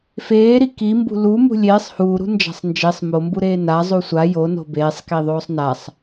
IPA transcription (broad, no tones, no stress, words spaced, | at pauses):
feːɾi kimbṳ lu mṳlʲeːsˤ huːɾṳ nd͡ʒa̤sˤnd͡ʒesˤ mombuɾeː na zˤusʷa jono̤ beːsˤkiðˤoːsˤ nasˤ